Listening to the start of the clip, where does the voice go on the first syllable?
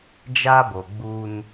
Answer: high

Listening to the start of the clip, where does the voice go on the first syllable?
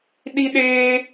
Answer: high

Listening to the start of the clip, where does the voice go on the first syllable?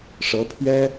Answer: rising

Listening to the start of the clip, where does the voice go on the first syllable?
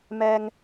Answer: high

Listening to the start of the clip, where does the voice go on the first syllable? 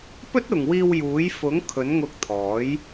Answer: high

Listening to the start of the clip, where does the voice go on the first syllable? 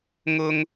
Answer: high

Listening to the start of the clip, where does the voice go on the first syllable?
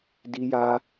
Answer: high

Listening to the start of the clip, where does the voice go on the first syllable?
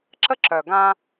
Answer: high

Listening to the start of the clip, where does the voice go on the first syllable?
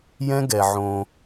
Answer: high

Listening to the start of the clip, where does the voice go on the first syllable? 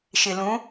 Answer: low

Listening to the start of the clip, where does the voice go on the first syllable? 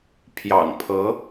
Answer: low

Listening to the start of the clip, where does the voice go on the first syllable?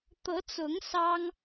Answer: rising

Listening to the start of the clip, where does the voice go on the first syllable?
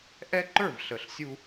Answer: high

